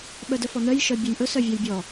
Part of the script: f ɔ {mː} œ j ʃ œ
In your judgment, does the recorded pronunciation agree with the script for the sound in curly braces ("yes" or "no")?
no